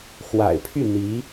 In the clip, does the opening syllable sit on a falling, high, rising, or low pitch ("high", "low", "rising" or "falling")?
low